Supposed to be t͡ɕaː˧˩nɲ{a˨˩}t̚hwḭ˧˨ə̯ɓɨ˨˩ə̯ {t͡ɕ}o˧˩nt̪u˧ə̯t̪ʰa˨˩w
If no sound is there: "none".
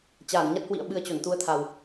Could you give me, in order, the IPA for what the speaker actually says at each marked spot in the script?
a˦˥, t͡ɕ

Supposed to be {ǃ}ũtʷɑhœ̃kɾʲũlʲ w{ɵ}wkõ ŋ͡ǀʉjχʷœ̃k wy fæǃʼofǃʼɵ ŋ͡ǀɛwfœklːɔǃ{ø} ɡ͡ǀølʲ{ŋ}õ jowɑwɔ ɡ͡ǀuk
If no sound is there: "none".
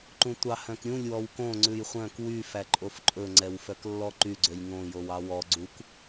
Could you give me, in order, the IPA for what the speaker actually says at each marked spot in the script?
ǃ, ɔ, y, ŋ

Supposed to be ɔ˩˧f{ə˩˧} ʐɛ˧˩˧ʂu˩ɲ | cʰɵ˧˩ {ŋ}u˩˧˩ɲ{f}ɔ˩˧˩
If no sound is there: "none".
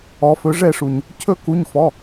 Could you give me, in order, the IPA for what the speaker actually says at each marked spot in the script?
ɵ˩˧, k, f

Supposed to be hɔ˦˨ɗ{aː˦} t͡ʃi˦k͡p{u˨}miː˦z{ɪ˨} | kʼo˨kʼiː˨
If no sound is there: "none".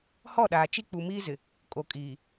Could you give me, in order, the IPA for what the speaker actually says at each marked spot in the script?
aː˨, u˨, ɪ˨

